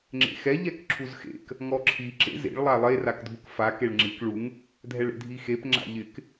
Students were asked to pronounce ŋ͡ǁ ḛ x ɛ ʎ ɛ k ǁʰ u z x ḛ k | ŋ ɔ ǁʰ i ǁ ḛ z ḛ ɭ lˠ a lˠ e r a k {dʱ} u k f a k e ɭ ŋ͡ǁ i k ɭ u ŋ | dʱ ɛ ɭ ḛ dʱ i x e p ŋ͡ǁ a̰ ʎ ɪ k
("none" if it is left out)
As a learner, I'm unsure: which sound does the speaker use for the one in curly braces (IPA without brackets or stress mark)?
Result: dʱ